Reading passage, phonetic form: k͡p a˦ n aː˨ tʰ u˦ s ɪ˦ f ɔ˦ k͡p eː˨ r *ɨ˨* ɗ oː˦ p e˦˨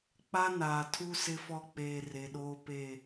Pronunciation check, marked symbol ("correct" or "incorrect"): incorrect